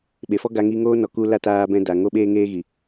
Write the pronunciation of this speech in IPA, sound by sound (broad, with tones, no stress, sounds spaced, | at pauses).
ɓ e˨ f ɔ˦ ɡ a˧ ŋ i˧ ŋ oː˦ n ɔ˨ k u˧ l a˦ t aː˧ b ɛ̃˧ d a˨ ŋ o˦ ɓ eː˦ ŋ eː˦ ɣ i˨